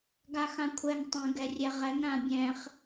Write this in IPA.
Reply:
ɡ a x ã kʷʰ ɛ ŋ tˤ ə̃ ɡ ɛ rʲ ɛ ʁ ɛ ŋ ɾ ã bʲ ɛ̃ χ

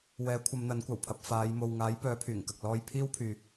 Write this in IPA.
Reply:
w ɛː˨˥ kʷʰ ɐ˨˧ m n̪ ɐ˨˥ n kʷ ɐ˨˩ w pʰ ɐ˧ p̚ f aː˨˧ j m o˨ w ŋ aː˨˥ j p œː˨˥ pʰ yː˨˩ ŋ k ɐ˨ k̚ l ɔː˥ j pʰ iː˥ w pʰ yː˨

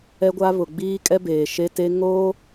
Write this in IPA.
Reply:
ɛ˦ ɡʷ a˦ β ʊ˨ ɡ͡b iː˦ kʼ ɛ˦ b eː˨ ʃ e˦ t e˦ ŋ oː˦

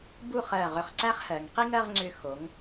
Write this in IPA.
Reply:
b u˥˧ χ ɜ˧˩ ʁ ʏ˧˩ χ ǀ æ˥ χ h ɜ˩˧ ŋ q i˥ ŋ ɜ˥˧ ʁ ŋ͡ǀ ʏ˧ x o˩˧ ŋ

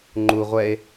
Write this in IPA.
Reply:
ŋ͡ǃ u ʁʷ ɛ e̯

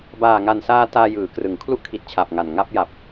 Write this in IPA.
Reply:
b aː˨˩ ŋ a˨˩ n s aː˧ t aː˧ j ɯː˩˦ k r ɯ˩˦ ŋ kʰ l u˥˩ ʔ kʰ i˨˩ t̚ t͡ɕʰ a˨˩ p̚ ŋ a˨˩ n ŋ a˥˩ p̚ j a˨˩ p̚

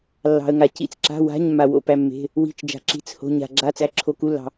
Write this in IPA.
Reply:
lː ɑ̤˧ ə̯ ŋ a˧ c ḭ˧˥˧ t͡s ǁ a̤˧˥˧ w a̤˧˥˧ ɲ mː a˧ w o̰˧ p æ˧ mː e̤˧˥˧ | w i̤˧˥˧ t͡ʃ d͡ʒ a̤˧ ǁ i̤˧˥˧ t͡s h o̤˧˥˧ ɲ a̤˧ ɡ͡ǁ a˧˥˧ t͡s æ˧˥˧ ǁʰ o˧ k u˧˥˧ lː ɑ̤˧

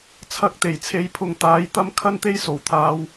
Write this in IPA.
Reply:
t͡sʰ ɐ˨˥ k̚ t̪ e˨˩ j t͡sʰ e˨˧ j pʰ ʊ˨ ŋ t̪ aː˨˥ j t̪ ɐ˥ m kʰ ɐ˥ n t̪ e˥ j s o˨˩ w t̪ʰ aː˨˧ w

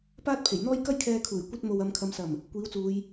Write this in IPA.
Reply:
p aː˥ t̚ pʰ e˨˩ j n̪ ɔː˥ j k ɐ˥ j kʰ ɛː˧ kʰ uː˨˩ j kʷ ɐ˧ t̚ m o˨ w ɐ˨˧ m kʰ ɐ˨˧ m s ɐ˨˩ m | kʷ iː˨˥ w t͡s uː˨˧ j

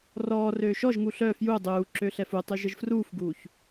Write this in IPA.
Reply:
r ɔː r øː ʃ ɔ ʒ ŋ u ɬ œ f j u dˤ uː ǁ ø ɬ ɛ f u tˤ y ʒ ə ʒ f r uː f ɡ uː ç

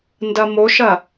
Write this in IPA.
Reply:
n d ɐ m o ʃ ɐ

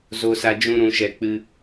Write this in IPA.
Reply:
z o˦ s a˦ d͡ʒ ũ˦ ɾ ũ˦ ʃ ɛ˦ k͡p ɨ˦

